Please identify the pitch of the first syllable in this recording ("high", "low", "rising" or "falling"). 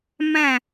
falling